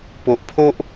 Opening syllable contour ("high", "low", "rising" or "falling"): low